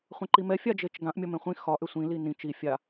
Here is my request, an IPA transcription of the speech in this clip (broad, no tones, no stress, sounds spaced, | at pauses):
χʷ ɛ̃ ǃ i m ɛ fʲ a d͡ʒ e t͡ʃ ɡ ã ʔ mʲ ɒ m ẽ χʷ ĩ x ɒ ʔ ʏ sʷ ĩ l i n ĩ t͡ʃ i fʲ a